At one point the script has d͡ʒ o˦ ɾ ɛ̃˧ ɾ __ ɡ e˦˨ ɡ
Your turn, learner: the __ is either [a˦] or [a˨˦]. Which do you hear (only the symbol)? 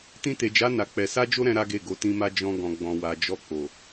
a˦